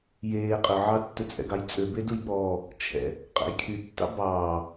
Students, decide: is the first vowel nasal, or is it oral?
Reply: oral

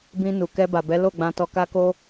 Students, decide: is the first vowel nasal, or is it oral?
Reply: nasal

